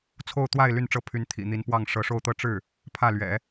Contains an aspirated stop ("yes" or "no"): yes